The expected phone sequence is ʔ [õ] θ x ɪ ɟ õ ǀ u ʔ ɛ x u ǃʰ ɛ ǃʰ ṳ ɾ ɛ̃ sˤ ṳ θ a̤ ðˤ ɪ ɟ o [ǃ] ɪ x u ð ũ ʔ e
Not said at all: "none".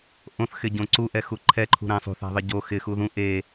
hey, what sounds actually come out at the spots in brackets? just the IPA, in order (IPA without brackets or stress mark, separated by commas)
õ, x